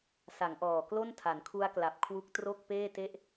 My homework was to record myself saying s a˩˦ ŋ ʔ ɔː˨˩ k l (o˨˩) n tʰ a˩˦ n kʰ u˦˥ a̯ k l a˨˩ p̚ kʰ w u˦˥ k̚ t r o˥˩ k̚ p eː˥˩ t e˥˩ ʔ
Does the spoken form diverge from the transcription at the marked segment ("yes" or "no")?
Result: yes